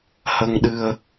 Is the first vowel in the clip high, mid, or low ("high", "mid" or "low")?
mid